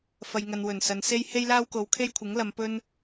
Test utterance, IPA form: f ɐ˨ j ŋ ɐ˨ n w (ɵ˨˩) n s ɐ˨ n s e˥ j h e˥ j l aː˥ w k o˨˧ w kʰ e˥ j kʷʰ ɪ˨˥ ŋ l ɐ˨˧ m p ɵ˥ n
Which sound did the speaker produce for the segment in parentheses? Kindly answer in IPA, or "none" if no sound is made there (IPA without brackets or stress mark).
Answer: ɵ˨˩